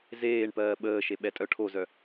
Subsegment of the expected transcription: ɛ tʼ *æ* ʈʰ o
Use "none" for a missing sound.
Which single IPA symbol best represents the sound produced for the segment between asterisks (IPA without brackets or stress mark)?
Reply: œ